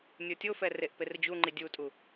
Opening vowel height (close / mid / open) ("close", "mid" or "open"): mid